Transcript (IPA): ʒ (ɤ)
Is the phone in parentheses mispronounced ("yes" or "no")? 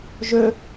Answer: yes